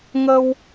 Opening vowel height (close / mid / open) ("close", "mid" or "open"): mid